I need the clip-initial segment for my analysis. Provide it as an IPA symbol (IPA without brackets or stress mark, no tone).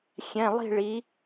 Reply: xʲ